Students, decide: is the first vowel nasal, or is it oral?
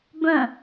nasal